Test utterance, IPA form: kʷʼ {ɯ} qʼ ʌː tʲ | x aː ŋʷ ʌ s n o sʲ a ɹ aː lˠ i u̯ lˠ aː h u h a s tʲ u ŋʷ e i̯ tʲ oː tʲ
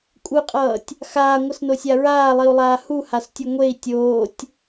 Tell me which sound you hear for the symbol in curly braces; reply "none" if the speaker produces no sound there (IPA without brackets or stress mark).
ɯ